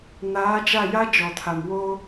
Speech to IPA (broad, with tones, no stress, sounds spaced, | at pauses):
n aː˨˦ d͡ʒ a˦˨ j a˦ d͡ʒ ɔ˨ tʰ a˨ m w o˦